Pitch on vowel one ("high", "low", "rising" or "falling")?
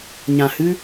low